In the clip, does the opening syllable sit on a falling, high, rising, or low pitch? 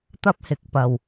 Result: high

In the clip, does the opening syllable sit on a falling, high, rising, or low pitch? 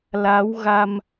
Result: rising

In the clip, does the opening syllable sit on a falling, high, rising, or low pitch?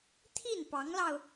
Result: falling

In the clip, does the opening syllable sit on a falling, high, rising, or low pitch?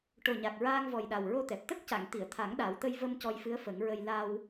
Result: low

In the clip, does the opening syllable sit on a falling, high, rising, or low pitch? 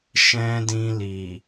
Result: high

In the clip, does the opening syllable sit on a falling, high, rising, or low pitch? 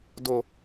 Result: low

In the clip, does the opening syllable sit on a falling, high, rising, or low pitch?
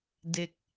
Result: falling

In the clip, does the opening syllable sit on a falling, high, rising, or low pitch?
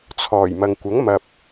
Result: low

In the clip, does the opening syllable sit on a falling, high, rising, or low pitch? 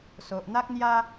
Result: low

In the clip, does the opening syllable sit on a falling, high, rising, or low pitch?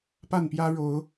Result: falling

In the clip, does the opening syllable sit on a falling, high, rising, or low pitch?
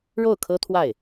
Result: falling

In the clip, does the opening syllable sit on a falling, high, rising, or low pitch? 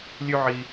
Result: high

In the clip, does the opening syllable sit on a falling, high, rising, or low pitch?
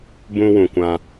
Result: high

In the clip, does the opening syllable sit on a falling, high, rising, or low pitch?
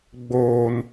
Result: high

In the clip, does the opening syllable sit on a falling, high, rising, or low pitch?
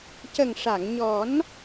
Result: low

